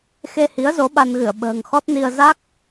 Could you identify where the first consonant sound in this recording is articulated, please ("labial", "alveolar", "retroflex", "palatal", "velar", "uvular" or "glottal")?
velar